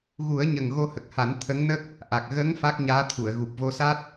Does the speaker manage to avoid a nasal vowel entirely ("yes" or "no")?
yes